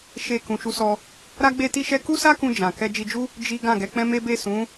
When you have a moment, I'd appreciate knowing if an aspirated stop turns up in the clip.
no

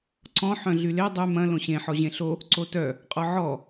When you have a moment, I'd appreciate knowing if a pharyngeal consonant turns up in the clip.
yes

